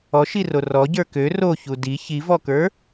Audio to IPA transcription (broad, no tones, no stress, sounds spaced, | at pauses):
ɔ ʃ i r o r ɔ ɟ ə˞ k ø r o ç u d i ç i v ɔ k ə˞